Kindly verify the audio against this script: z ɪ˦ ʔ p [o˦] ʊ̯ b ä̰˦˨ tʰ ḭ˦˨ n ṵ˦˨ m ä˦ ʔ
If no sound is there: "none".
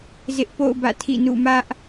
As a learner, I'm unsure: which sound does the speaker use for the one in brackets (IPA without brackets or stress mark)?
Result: o̰˦˨